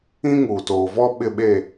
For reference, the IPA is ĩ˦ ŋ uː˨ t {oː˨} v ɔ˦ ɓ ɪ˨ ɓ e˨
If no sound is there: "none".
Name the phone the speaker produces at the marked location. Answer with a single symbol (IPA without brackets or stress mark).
oː˨